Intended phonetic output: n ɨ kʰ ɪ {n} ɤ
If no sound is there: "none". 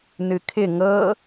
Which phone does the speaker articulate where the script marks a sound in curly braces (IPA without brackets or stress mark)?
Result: ŋ